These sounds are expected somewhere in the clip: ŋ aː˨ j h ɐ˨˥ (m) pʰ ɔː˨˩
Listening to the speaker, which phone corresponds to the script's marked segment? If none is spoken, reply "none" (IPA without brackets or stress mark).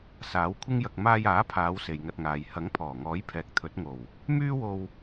ŋ